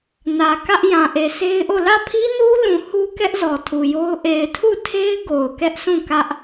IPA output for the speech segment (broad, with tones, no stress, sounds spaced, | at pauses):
n ä˨ k ä˦ ʔ j ã˨ ʔ e˨ s e˦ ɪ̯ ʔ o˦˨ l ä˦˨ pʰ i˦ n u˦ l ũ˨ h u˦ k ɛ˦ ʔ z ɔ˨ tʰ u˨ j o˦ ʊ̯ ʔ e˨ ɪ̯ tʰ u˦˨ tʰ e˦ ɪ̯ ɡ o˨ ʊ̯ k ɛ˦ ʔ s ũ˦˨ k ä˦ ʔ